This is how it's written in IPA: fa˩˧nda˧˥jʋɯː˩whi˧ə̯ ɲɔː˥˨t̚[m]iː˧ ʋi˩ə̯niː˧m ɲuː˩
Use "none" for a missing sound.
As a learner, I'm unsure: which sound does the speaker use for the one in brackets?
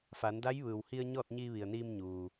ɲ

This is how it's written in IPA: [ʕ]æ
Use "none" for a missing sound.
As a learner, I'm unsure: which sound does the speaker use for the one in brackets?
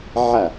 ʕ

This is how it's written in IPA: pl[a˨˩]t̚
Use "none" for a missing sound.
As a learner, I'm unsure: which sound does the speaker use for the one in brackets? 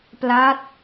a˦˥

